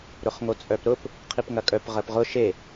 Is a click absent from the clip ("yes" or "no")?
yes